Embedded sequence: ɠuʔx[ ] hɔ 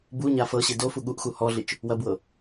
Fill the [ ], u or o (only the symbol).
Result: u